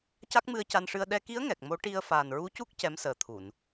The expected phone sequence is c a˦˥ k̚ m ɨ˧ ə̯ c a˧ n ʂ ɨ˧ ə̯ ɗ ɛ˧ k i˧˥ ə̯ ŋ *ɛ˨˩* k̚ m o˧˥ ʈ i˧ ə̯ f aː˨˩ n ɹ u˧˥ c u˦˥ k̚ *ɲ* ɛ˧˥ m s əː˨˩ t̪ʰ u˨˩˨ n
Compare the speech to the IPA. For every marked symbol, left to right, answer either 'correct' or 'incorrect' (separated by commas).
correct, incorrect